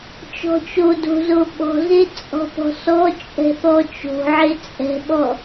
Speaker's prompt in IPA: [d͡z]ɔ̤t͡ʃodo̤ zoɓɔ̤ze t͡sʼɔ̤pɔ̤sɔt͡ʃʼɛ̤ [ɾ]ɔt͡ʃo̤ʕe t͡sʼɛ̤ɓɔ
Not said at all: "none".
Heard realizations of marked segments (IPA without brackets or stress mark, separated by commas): t͡ʃ, θ